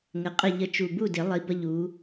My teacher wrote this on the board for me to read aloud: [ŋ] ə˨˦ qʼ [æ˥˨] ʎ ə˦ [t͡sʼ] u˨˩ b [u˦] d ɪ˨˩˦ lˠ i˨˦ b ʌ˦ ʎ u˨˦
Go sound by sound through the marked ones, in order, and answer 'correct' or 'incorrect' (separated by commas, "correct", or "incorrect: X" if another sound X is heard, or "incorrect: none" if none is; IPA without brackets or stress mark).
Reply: correct, incorrect: ə˥˨, incorrect: t͡ʃ, incorrect: u˥˨